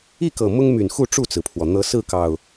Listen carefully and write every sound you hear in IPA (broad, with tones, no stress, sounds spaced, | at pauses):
i˥˨ k ɤ˨˩ m ʊ˦ ŋ m y˨˩ n x u˥˨ ʈ͡ʂ u˥˨ t͡s ɹ̩˩ pʰ w ɔ˩ n̪ ɤ˨˦ s ɹ̩˥˨ k ɑ˨˩ ʊ̯